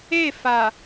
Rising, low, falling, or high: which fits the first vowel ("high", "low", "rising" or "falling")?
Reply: falling